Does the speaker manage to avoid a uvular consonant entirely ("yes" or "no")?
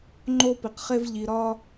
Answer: no